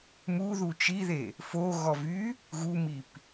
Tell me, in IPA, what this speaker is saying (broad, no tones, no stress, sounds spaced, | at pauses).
m u ð u t͡ʃ i ð e | f o ɣ ɔ v y | ɣ u m i p